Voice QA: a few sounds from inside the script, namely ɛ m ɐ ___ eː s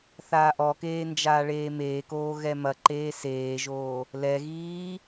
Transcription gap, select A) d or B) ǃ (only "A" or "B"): B